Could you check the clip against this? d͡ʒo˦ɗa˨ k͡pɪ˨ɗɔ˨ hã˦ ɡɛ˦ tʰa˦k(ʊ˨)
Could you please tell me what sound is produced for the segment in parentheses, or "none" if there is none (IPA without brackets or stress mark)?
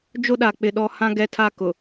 ʊ˨